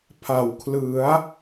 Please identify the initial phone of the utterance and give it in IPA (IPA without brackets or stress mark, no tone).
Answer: pʰ